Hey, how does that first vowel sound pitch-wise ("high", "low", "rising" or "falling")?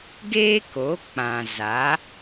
high